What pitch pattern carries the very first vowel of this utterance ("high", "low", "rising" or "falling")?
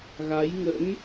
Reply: rising